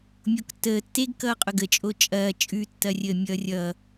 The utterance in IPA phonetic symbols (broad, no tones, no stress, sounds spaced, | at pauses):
mʲ o k tː əː tː e ɡ k ʌː qʼ ʊ ɡ ə t͡ʃʼ o t͡ʃʼ ɐː t͡ʃʼ ʉ tː ɐ rʲ əː mʲ ʌː rʲ ʌː